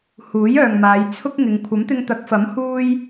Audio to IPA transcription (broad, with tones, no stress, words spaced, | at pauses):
huː˨˥jœː˨ŋmaː˨˧j t͡sʰʊ˥k̚ŋɪ˨˧ŋ kʷʰɐ˨˥mt̪ɪ˧ŋt̪ɐ˨˥k̚fɐ˨˥m huː˥j